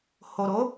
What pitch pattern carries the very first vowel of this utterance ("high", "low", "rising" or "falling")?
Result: low